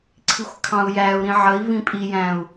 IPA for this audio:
ǀʰ i xʷ kʰ ɑ̃ u̯ j æ u̯ ɾ ĩ ʕ ə i̯ v ĩ pʼ i j æ̃ u̯

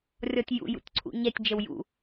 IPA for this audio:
rʲ ɔ tʲ j ṵ j ṵ tʲ ǀʰ ṵ ɲ ɛ tʲ d͡ʒ ə w j ṵ

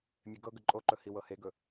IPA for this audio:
mʲ e ɡ ɤ ɡ ə ǃʼ o ǃ ɵ h i w ɤ h e ɡ ɵ

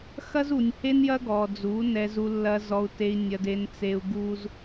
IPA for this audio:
x ɐ˦ z u˨ nʲ h e˦ n j ɐ˦ ɡ ɔ˨ d͡z u˨˦ n ɛ˨ z u˨ lː ɐ˨ z ɔ˨ u̯ t e˨ i̯ nʲ ɐ˨ d e˨ n t͡s e˨ u̯ ɡ u˦ z

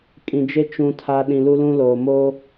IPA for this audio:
kʼ ĩ˨ d͡ʒ e˦ t͡ʃ ũ˨ tʰ a˨ ɗ ĩ˨ l u˦ l ũ˦ l oː˨ m oː˦

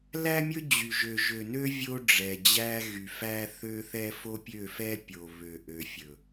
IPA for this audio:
l æ˦ mʲ ɵ˦ d͡ʑ y˨ ʒ ø˨ ʒ ø˨ n ø˦ vʲ o˦ ɖ͡ʐ ɛ˨ d͡ʑ æ˦ ɣ y˨ f æ˦ θ ø˦ θ ɛ˦ f o˦ pʲ ø˦˨ f ɛ˦ pʲ o˨ β ø˨ ʔ ø˨ fʲ ɵ˨

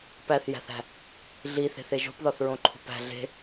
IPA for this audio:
p æ θ j æ̤ θ æ̤ | ɮ i θ e̤ θ e ʒ o̤ p ð ɒ θ ɹ õ ǃʰ ṳ p æ̤ ɮ e̤

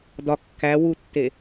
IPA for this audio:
d ɒ kː æ w u tː e

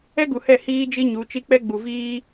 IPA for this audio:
ɛ˦ ɡ u˨ h ɛ˦˨ h iː˦ d͡ʒ i˦ ɲ u˨˦ t͡ʃ i˦ k͡p ɛ˦ ɡ͡b u˨ v iː˦

